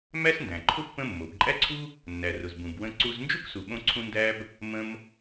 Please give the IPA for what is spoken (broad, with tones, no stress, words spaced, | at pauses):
mæ˥sndæ̃˩ǃʰʊ˥ pːə̃˥ mːo˩bǃʼæ˥ǀʰu˥ | nːæ˩rʊ˩z bũ˩bwə̃˧ǀu˧z nd͡ʒu˥ksu˩ɓõ˧ǀʰũ˧ ndæ˥b | mə̃˧m